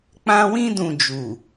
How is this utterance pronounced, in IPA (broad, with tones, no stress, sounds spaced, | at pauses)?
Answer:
k͡p ã˧ w ĩ˧ d ũ˨ d͡ʒ u˨